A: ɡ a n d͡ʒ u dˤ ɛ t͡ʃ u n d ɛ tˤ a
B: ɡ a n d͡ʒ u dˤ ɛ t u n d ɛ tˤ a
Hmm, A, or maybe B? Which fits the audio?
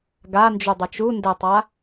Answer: A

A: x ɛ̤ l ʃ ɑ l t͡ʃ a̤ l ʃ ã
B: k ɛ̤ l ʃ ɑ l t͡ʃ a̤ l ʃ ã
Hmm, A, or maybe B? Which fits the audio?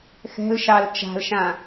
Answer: A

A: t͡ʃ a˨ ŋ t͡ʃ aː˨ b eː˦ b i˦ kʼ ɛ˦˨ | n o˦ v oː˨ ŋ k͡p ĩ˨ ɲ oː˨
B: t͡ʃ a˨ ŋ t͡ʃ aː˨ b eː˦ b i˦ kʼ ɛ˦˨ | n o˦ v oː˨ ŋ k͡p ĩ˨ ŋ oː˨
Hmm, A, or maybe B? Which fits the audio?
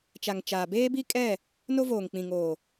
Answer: B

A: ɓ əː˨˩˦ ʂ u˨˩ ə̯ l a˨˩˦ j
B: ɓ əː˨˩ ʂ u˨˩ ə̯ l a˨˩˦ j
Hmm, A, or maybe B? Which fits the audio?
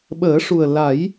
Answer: A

